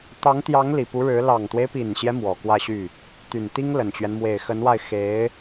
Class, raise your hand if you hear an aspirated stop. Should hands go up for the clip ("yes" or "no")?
no